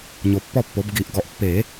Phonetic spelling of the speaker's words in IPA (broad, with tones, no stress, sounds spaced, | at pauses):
ɲ o˨ pː ɔ˥˩ pː o˩˥ b ɡ i˨˩˦ ʔ ɡ ɔ˨ ʔ pː e˨˩˦